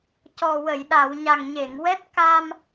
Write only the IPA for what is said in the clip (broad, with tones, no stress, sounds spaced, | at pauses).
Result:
c ɔ˨˩ w ə˨˩˨ j ɗ a˨˩˨ w ɲ a˨˩ ŋ ɲ e˨˩˨ ŋ w ɛ˦˥ t̚ k a˧ m